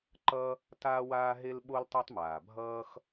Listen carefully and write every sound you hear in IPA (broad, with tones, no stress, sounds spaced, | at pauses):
ǃ ʌ˥ | t aː˥ w aː˥ ɦ e˥ l ɓ o˥ l tˤ ɛ˥ tˤ m aː˩ bʱ ʌː˥ x